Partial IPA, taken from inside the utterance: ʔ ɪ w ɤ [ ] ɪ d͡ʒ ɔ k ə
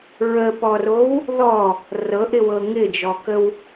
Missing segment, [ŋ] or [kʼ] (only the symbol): ŋ